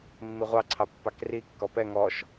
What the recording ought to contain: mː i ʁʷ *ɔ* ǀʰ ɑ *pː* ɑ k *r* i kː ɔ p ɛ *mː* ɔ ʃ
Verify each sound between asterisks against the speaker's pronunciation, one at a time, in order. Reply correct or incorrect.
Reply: incorrect, correct, correct, incorrect

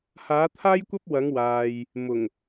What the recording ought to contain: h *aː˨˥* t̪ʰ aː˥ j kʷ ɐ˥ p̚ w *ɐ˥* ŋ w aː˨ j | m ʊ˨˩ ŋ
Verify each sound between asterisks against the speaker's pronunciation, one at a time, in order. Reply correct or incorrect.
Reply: correct, incorrect

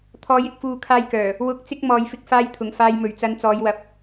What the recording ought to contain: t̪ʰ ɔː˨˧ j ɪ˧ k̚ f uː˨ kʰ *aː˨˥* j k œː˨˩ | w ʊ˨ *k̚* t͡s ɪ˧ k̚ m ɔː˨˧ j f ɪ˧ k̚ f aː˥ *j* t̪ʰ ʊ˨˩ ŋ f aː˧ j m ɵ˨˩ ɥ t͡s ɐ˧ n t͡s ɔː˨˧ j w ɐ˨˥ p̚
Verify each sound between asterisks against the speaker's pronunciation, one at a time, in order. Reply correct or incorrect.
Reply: incorrect, correct, correct

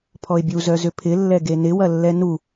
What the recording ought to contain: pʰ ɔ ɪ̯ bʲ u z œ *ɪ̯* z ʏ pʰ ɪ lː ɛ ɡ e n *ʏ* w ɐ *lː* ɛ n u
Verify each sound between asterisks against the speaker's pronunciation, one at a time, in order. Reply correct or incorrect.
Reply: incorrect, incorrect, correct

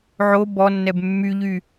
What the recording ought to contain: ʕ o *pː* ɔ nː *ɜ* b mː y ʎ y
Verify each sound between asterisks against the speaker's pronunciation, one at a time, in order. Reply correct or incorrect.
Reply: incorrect, incorrect

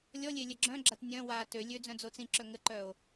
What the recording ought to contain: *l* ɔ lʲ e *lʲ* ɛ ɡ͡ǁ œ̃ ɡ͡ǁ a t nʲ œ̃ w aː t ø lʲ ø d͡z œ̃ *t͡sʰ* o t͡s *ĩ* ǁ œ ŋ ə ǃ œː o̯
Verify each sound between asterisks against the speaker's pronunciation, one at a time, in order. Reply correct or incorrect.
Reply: incorrect, correct, incorrect, correct

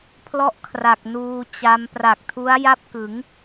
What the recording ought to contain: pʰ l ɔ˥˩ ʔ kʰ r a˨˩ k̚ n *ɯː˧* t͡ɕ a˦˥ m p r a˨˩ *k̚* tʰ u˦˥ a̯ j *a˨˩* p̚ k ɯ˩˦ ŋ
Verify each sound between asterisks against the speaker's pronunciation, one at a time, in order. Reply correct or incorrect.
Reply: incorrect, correct, incorrect

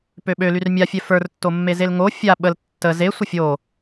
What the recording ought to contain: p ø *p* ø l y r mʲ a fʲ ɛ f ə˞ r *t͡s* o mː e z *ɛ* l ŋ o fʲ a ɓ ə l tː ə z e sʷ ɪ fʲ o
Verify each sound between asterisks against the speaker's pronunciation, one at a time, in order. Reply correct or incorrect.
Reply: incorrect, incorrect, incorrect

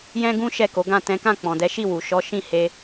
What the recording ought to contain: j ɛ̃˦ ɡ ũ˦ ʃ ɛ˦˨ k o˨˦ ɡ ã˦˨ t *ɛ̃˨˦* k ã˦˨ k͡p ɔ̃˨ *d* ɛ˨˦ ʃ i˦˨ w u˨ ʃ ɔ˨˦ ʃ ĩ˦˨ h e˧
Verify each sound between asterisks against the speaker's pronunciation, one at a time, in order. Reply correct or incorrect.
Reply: correct, correct

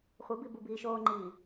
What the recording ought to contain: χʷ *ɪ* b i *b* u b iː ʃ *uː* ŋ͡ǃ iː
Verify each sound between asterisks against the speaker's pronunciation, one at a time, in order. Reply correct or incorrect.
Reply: correct, correct, incorrect

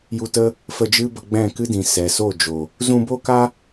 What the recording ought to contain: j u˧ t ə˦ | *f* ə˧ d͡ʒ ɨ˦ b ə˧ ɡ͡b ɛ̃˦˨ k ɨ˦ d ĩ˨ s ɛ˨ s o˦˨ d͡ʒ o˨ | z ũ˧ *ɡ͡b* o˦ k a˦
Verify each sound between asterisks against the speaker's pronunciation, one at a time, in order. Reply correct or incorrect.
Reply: correct, incorrect

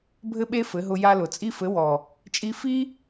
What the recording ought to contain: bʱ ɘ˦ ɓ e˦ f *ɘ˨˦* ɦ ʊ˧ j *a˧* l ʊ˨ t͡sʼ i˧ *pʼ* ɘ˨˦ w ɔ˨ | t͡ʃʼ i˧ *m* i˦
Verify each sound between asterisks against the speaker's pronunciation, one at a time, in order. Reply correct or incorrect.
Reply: correct, correct, incorrect, incorrect

